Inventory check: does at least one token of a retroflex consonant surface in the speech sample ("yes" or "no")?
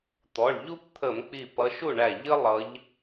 yes